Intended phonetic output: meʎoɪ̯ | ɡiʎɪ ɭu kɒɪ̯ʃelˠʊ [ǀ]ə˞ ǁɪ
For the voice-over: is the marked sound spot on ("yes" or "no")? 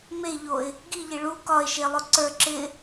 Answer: yes